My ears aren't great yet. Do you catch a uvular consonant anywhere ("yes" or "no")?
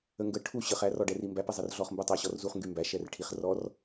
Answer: yes